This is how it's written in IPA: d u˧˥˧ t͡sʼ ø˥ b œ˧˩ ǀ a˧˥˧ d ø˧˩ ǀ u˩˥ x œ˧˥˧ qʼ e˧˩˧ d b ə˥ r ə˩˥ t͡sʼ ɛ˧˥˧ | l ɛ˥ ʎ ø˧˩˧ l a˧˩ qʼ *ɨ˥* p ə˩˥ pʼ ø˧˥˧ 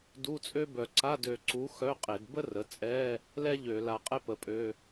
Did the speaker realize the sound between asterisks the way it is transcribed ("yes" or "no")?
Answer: no